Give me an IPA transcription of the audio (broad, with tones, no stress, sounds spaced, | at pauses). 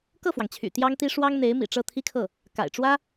k ɤ˥˩ f w ɑ˩ ŋ t͡ɕʰ y̰˨˩ t̪ j ɑ˥ ŋ t̪ i˥ ʂ w ɑ˥ ŋ n̪ e˧˥ ɪ̯ m ḭ˨˩ ʈ͡ʂ ɤ˥˩ t̪ʰ i˥ kʰ ɤ˥˩ | k a̰˨˩ ɪ̯ ʈ͡ʂ w ä˥